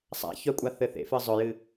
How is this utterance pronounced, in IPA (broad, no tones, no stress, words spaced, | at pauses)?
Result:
sˤa̰ çœkʷʼaθɘ θḛfɨ zˤɵjɨ